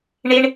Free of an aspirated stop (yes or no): yes